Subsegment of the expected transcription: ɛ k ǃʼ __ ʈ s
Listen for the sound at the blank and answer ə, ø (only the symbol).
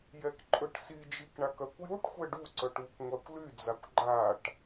ø